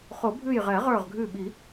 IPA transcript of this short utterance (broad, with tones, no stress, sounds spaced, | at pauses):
χ o˨˩˦ bʱ ʉ˧˩ j ʁ ɛ˨˩˦ ʁ ə˞˧˩ ʁ ɡʱ ʉ˧˩ ɓ i˨˩˦